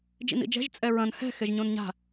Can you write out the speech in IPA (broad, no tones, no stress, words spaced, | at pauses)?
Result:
d͡ʒḭnḭd͡ʒɛ̤ʒ t͡sʼɛɹɐ̃n hɛ̤ xeʒɲõnɲa̤